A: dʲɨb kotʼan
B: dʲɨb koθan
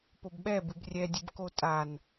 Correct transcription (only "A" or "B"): A